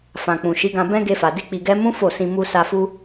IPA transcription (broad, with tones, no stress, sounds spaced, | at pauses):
f ã˨ k͡p ũ˨ ʃ i˨˦ ɡ ã˧ b ɛ̃˦ ɡ e˧ f a˨ d i˧ k͡p i˨ ɡ ɛ˧ m ũ˦ f o˦˨ s ĩ˧ m u˧ s a˧ f u˦